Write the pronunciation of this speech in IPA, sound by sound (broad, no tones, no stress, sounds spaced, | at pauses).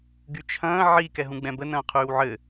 ɡ y t͡ʃʰ ɐ̃ː ʕ i k ɛ ɦ ũ ɡ͡b ɛ̃ b ə n ɐ̃ː qʰ yː w ʕ ɘ